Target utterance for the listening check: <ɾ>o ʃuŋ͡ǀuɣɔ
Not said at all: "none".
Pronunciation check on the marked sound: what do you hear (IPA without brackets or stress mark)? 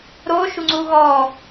ɾ